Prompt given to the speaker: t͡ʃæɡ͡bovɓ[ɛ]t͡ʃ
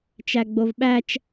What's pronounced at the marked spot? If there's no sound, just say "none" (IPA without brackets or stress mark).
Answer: æ